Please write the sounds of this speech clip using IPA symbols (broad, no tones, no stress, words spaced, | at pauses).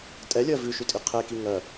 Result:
tʼɛlʲɜ vʉʃʉtʼi qʰeki ŋɜ